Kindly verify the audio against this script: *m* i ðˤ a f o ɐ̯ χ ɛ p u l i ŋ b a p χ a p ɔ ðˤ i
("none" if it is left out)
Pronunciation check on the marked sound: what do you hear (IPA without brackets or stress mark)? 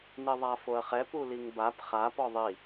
n